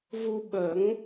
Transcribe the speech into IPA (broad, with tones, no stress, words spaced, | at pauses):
vu˧ɓə˨˩˦ŋ